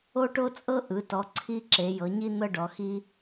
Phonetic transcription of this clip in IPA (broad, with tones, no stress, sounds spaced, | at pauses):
o˦ ʈ o˦ t͡sʼ ɤ˦ ʔ ɯ˩˧ t ɔ˩˧ ǀʰ i˦ ǁ e˩˧ j ɤ˩˧ ɲ i˦ n̪ ɤ˦ ɖ ɔ˩˧ x i˦